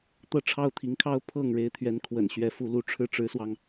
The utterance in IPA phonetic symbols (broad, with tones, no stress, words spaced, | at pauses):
t̪ɤ˥˩ʈ͡ʂʰɑ˥ʊ̯t̪ʰi˧˥ŋkʰɑ˥ʊ̯ pʰɤ˥˩ŋ ɻe˧˥ɪ̯t̪ʰɥɛ˧˥n kʰwə̰˨˩nɕɥɛ˧˥ fu˧˥lu˧˥ ʈ͡ʂʰɻ̩˥˩ʈ͡ʂɻ̩˧˥swɑ˧ŋ